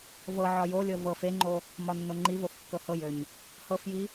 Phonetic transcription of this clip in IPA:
v ɤ ʕ ɒ j o lʲ ɤ v ɤ f e ŋ͡ǃ o | m ɒ nː o ŋ͡ǃ i v o f kː ɤ h ɤ j ø ɲ | h ɤ f j i

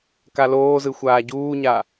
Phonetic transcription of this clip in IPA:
k a l oː z ɯ xʷ aː ɟ uː ɲ a

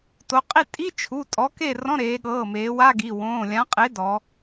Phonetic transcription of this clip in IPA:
t o˩˧ qʼ i˥˨ tʼ i˧˥˧ t͡ʃʰ u˩˧˩ tʼ ɔ˨˥ k e˥˨ r ɔ̃˧˥˧ ɾ eː˩˧ ɠ ɤː˩˧˩ m eː˩˧ w a˧˥˧ ɡ i˩˧˩ w õː˩˧˩ lʲ ã˨˥ qʼ e˨˥ d ɔ˩˧

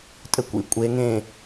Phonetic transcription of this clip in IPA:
tʼ ɘ kʷ ḭ kʷʼ e ŋ ẽ

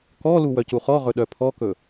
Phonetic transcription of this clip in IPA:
k ɔ l u w œ c u χ ɔ ʁ ɵ ɗ œ pʰ ɔ k ɵ

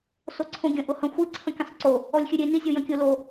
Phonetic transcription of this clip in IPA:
s o ǀʰ õ ɡʲ ə̃ ʔ ʊ h ə̃ xʷ i ǀʰ ə̃ kʲ ə̃ sˤ ǀ o | ɔ lʲ xʲ ʉ ɾʲ e n i zʲ o j ə̃ kʲ ʊ l o

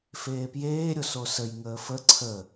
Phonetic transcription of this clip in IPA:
f eː p j eː ɾʲ o s o s ə j ŋ əː f ə ǀʰ ə

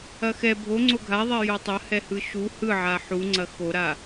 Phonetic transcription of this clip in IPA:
ɐ x ɛ bʱ o ŋ͡ǀ o ɡʱ a ðˤ ɛ j o tˤ ɐ h ɛ h ɯ ʃ u h ɯ ʕ a ħ u ŋ͡ǀ ɐ x o ɾ a

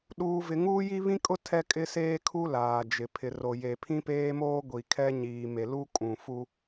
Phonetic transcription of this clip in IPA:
ɗ uː˦ v ɪ˦ ŋ uː˦ j i˦ β ĩ˦ kʼ ʊ˦ tʰ ɛ˦ kʼ ɪ˦ s eː˦ kʰ u˦ l aː˨ d͡ʒ ɪ˨ pʰ ɪ˨ r o˨ j e˨ pʰ ĩ˦ p eː˦ m oː˦ ɡʷ i˨ kʰ ɛ˦ ɲ iː˨ m e˨ l u˦ kʼ ũ˨ f u˦

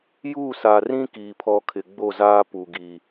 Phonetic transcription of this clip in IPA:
j uː˦˨ s a˨ r ĩ˦ k iː˨ pʰ ɔ˦ kʰ ɪ˨ ɡ͡b o˦˨ z aː˦ p u˨ ɡ iː˨

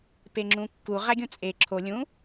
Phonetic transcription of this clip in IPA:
p e ŋ͡ǁ ũ kː u ʁ æ ɡʲ ũ t͡sʼ e ǁʰ o lʲ ũ

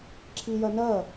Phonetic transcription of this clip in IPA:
ǁʰ i j ɜ n ɜ

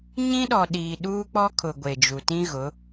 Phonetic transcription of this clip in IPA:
ɲ ĩ˦ ɗ ɔ˨ ɗ iː˨ ɗ uː˦ k͡p ɔ˦ kʰ ʊ˨ ɡʷ e˨ d͡ʒ u˨ t ĩ˦ ɣ ʊ˨˦

